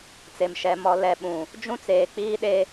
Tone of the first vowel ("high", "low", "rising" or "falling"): low